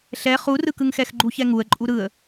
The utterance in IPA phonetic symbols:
ɬ ɛ χ u r ɯ k ɯ ŋ x ɛ x ɡ͡ǃ u ç ɛ ŋ u ə̯ ǃʼ u ɾ ɯ ə̯

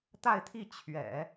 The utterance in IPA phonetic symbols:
t̪ a˥˧ ɪ̯ t̪ʰ i˥˩ t͡ɕʰ ɥ ɛ̰˨˩˦

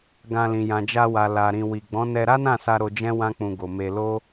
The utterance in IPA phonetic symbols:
ɡ ã˧ l ĩ˨ j ã˨ d͡ʒ a˧ w a˨ l a˨ ɾ ĩ˨ w i˨ ɡ͡b ɔ̃˨˦ n ɛ˧ ɾ a˦ n ã˦˨ s a˧ ɾ o˧ d͡ʒ ɛ̃˦ w ã˦ k͡p ũ˧ ɡ o˨ m e˧ l o˦

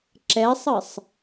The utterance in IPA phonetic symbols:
ǁ ɛ sˤ ɨ sˤ

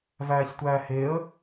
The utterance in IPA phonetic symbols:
v æː ç tʷ æː h e ə̯

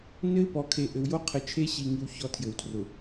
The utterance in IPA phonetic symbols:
n ɘ˦ ɪ̯ p ɔ˨ kʰ e˨ ʔ ɘ˨ w j o˦ qʰ ɘ˨ t͡ʃʰ e˦ ɕ i˨ ŋ i˦ w ç ɔ˦ tʰ j ɘ˨ w tʰ r ʊ˨

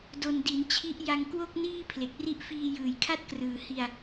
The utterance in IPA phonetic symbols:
d o˧ n d i˩˦ n t͡ɕʰ i˦˥ ʔ j a˧ ŋ k w o˥˩ k̚ n iː˥˩ pʰ l e˨˩ k̚ r i˦˥ ʔ f iː˧ j ɯː˨˩ j kʰ a˥˩ t̚ k r ɯː˨˩ h i˧ a̯

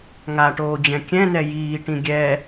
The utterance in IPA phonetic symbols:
ŋ a ʈ oː d͡ʑ ɛ̃ kʲ ɛ̃ n ɛ j iː ʈ ĩ ɡʲ ɛ

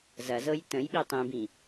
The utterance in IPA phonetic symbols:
z ɐ z ɤ j t ə̃ j ɓ i tˤ ĩ b ĩ

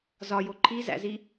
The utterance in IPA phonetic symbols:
z ɒ j o ǃʰ i z æ̰ z i

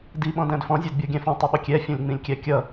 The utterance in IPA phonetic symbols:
d i ɓ ɔ̃ d æ̃ d f ɔ̃ zʲ æ d bʲ ɔ ɡʲ æ̃ f ɔ̃ tˤ ʊ ɓ ʊ kʲ ɛ fʲ ɔ̃ lʲ ŋ͡m ĩ lʲ kʲ æ kʲ ʌ

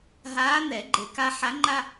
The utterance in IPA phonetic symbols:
ɦ aː˧˥ n̪ ɛ˨˩˦ ɡ͡ǃ e˨ k a˥ ħ a˧˥ ŋ͡ǃ a˥

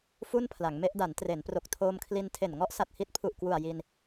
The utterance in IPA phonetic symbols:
f u˥˩ n pʰ l a˩˦ ŋ m e˦˥ ʔ d a˩˦ n t r e˩˦ n p r o˨˩ k̚ tʰ oː˧ m kʰ l i˧ n tʰ e˨˩ n ŋ ɔ˦˥ ʔ s a˨˩ t̚ h i˦˥ t̚ pʰ u˨˩ ʔ k w u˨˩ a̯ j i˧ n

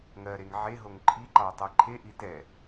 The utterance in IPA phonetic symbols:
ŋ ɜ ɾ e ŋ ʕ e ɦ o ŋ ǃʰ i ǃ ɑ ɐ̯ tˤ e ǃʰ e ʔ i t ɛ

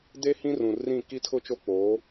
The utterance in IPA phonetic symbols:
d e˦ h ĩ˦ r ũ˨ r ĩ˦˨ k i˦ tʰ ʊ˦ t͡ʃ o˦ k͡p oː˨˦

